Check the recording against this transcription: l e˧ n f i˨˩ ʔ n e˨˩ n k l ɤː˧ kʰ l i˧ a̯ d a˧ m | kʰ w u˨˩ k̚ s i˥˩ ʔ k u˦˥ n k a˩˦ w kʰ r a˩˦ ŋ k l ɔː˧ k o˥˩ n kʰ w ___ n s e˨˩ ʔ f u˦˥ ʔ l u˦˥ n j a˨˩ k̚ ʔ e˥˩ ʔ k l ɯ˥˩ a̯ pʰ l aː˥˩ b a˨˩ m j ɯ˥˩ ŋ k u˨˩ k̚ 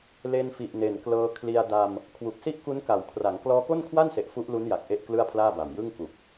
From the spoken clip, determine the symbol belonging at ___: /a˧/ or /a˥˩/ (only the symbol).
a˥˩